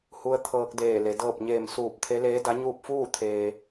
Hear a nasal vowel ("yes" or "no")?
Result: no